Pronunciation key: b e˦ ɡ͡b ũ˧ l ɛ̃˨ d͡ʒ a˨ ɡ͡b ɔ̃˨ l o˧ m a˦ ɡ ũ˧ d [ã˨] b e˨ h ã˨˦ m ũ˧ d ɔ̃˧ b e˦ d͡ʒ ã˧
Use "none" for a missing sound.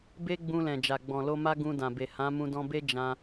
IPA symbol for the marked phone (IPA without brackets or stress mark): ã˨